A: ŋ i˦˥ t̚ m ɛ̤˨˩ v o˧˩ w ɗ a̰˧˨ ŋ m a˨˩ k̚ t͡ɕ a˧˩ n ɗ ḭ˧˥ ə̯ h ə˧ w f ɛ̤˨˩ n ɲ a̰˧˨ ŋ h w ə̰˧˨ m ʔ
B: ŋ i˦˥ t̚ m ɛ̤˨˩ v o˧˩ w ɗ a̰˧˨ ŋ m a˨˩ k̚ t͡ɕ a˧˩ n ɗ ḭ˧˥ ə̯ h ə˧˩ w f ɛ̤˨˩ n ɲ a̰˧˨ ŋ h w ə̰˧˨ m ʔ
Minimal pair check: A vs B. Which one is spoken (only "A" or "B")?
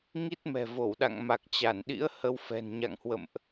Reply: A